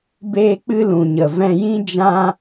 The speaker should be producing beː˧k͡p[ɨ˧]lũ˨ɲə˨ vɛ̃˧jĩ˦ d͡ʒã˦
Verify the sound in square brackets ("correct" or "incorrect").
correct